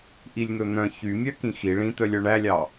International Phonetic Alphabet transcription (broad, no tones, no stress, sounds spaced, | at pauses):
ʔ i lʲ n̪ ɵ n̪ œ̃ ç y mʲ œ k ĩ x i ɭ ĩ t̪ œ lʲ œ ɳ æ lʲ ɑ